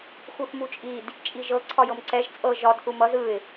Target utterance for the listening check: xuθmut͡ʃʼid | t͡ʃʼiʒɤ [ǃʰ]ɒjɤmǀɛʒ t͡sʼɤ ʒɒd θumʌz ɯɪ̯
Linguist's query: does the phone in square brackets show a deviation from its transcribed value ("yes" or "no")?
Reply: yes